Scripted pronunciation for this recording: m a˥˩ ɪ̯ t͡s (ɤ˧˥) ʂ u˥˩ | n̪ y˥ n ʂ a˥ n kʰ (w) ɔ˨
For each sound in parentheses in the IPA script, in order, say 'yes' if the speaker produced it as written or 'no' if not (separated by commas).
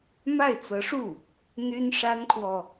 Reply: yes, yes